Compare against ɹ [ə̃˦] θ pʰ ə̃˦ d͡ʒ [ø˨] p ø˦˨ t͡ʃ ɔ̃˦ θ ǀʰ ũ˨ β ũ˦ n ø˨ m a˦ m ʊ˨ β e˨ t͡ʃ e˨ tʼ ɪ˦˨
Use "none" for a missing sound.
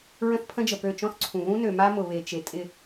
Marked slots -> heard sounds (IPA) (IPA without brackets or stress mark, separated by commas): ə̃˦, ə˨